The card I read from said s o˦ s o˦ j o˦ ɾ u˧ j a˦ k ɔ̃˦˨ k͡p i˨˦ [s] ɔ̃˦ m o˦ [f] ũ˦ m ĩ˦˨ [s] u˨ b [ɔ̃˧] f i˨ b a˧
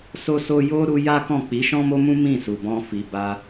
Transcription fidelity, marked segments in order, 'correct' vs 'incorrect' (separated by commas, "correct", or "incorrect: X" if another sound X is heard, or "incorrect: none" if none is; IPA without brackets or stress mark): incorrect: ʃ, incorrect: m, correct, correct